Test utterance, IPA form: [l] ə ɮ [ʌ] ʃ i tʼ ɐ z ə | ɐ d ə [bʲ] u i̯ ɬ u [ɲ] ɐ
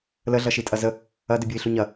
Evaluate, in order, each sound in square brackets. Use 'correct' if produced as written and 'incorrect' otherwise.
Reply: correct, correct, correct, correct

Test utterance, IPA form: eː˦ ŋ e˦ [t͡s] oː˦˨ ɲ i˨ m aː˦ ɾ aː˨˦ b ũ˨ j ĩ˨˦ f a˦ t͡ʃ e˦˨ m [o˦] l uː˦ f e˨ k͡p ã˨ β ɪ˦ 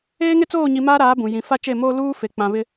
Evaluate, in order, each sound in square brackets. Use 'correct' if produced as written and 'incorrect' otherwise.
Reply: correct, incorrect: oː˦

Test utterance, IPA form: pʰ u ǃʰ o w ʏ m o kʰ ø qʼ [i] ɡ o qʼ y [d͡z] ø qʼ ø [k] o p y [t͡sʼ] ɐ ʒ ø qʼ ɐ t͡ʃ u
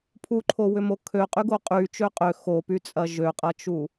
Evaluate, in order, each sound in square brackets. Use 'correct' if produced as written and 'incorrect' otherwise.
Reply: incorrect: y, incorrect: t͡ʃ, incorrect: x, correct

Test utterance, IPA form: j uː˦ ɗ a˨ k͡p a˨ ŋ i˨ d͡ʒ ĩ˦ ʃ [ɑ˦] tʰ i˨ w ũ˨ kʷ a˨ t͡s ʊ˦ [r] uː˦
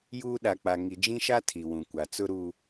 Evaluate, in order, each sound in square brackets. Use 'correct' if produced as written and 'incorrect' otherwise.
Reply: incorrect: a˦, incorrect: ɾ

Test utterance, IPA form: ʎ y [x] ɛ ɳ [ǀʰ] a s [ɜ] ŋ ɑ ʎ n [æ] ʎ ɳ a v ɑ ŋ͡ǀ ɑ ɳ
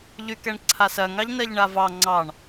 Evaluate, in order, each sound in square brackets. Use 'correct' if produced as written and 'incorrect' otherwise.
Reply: incorrect: k, correct, correct, incorrect: ɜ

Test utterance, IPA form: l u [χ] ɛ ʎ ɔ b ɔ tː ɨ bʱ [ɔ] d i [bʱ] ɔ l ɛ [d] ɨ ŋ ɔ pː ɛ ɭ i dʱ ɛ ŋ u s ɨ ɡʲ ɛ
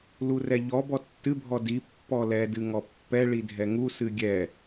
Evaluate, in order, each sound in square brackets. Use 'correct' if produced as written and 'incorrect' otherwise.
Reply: incorrect: r, correct, incorrect: pː, correct

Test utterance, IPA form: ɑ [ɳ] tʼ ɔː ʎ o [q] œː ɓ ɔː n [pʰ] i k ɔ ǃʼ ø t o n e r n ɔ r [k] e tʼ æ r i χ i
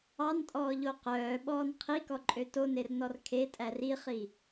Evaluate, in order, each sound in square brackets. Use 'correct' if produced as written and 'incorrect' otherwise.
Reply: incorrect: n, correct, incorrect: qʰ, incorrect: kʰ

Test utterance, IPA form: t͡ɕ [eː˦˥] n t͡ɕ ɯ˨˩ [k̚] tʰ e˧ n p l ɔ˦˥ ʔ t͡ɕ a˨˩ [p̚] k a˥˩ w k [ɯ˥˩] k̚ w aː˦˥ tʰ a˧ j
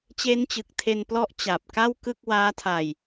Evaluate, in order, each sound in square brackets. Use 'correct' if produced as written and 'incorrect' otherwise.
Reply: correct, correct, correct, correct

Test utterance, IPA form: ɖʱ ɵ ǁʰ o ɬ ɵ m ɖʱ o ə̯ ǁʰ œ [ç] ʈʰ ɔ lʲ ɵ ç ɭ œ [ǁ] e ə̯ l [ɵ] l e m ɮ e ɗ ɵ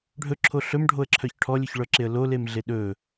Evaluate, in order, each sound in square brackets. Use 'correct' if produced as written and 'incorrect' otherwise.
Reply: correct, correct, incorrect: o

